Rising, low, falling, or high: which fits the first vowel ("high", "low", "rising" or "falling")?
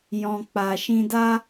low